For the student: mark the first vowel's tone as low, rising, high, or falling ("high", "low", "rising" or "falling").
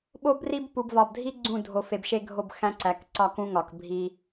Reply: high